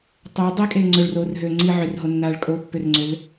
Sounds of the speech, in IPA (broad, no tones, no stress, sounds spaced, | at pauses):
tˤ ʏː dˤ i kʼ eː ŋ͡ǀ ʏ ɭ r oː r ɦ øː ŋ͡ǀ i ʕ ʏ r ɦ o nː aː ɭ kʼ o pː ʏ r ŋ͡ǀ ʏ l